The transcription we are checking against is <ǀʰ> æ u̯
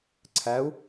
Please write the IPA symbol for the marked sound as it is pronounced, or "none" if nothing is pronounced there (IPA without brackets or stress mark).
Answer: ǀʰ